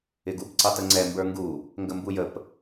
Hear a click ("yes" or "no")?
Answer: yes